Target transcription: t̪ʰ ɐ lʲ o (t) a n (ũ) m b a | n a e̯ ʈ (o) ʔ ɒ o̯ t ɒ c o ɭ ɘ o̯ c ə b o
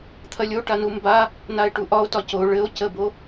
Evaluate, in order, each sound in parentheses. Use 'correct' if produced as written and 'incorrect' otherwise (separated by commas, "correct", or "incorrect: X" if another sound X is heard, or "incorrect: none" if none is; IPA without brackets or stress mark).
incorrect: ʈ, incorrect: u, incorrect: u